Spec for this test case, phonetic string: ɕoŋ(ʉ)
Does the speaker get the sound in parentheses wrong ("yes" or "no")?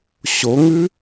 no